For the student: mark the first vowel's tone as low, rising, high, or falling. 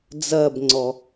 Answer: falling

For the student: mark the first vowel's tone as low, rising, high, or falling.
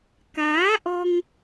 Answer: rising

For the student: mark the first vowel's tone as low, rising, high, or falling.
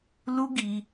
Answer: high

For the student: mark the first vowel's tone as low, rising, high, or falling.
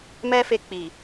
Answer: high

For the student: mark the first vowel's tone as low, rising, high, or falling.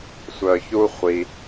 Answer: low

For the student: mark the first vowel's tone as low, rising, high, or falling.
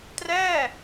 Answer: falling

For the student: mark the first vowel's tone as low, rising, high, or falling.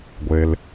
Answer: low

